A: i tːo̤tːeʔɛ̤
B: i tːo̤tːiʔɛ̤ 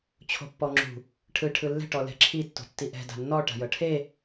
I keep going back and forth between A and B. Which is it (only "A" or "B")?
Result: B